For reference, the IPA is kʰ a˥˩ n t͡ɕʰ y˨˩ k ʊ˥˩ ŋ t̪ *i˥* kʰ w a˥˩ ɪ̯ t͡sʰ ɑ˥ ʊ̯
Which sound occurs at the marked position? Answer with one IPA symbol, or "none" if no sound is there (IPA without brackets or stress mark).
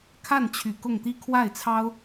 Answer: i˥